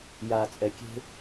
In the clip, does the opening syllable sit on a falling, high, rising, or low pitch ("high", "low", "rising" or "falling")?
low